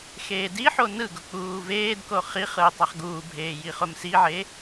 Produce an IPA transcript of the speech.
x eː d i ħ o n ɯ ɡ ʊ k͡p uː v eː d k o χ i χ ɯ ʊ̯ tˤ a χ ɡ uː bʱ eː j i χ ʊ m s i ʕ e

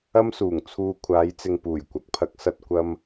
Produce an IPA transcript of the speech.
ɐ˥ m s uː˨˩ ŋ t͡sʰ uː˧ kʷʰ aː˨˧ j t͡s ɪ˨ ŋ p uː˨˩ j kʷ ɐ˨˥ k̚ pʰ ɐ˨˥ k̚ s ɐ˧ t̚ kʷ ɐ˥ m

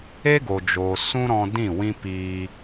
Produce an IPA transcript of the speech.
e˦ ɡ o˨ d͡ʒ oː˨ s ũ˦ ɾ ɔ̃˧ d ĩ˦˨ w ĩ˦ p iː˧

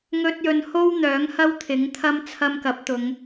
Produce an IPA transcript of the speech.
ŋ ɵ˧ t̚ j ɵ˨˧ n h o˥ w n̪ œː˨˥ ŋ h ɐ˥ w t̪ʰ ɪ˨˥ ŋ t̪ʰ ɐ˥ m t͡sʰ ɐ˧ m k ɐ˨˥ p̚ t̪ ʊ˨˧ ŋ

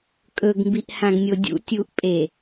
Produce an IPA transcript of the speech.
kʼ ɵ ɡ m b i ʔ h ã ɡ nʲ o dʲ ṵ tʲ u ʔ pʼ e

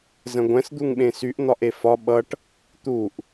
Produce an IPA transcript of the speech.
z ə̃ ɡʷ ɛ̃ s d̪ u ŋ ɓ ẽ s y ʔ n̪ ɒ ʔ e f ɒ ɓ ʌ ʈ | t̪ u ʔ

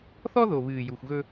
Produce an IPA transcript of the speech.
θ ɔ˦ ð o˨ β ɨː˨ j u˨ xʷ ɣ ɵ˦

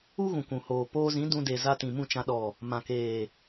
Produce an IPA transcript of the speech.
u˦ ɣ ũ˨ kʷ ũ˨ h oː˨ p oː˧ z ĩ˨˦ d ũ˧ d e˨ z a˧ t ĩ˨ m ũ˦˨ t͡ʃ ã˧ ɗ ɔ˨ | m ã˨ k eː˨

